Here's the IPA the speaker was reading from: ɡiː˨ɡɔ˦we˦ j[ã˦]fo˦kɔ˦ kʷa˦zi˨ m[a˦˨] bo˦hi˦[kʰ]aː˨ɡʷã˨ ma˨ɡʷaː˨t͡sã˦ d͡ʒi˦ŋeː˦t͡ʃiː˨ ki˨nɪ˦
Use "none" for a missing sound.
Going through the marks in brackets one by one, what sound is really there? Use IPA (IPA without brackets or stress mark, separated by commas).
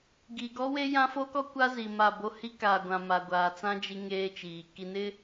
ã˦, a˦˨, k